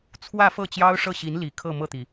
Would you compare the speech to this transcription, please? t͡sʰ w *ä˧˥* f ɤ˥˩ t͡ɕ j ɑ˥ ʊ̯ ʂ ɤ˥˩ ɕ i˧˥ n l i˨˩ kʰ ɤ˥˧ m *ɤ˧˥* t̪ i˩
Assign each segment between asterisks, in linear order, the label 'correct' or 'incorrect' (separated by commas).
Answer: incorrect, incorrect